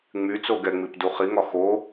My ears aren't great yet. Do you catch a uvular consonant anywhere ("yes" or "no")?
yes